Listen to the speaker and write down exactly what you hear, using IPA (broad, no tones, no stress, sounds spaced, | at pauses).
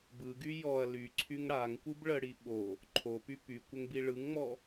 b ɯ ɡ y j ɔ ɐ̯ l y ǀʰ y ŋ ɽ a ŋ kʷ ɯ b ɭ ə ɽ i ɓ o | ǃʰ o p y p y kʷ ə ŋ b i ɭ ɯ ŋ ŋ͡m ɔ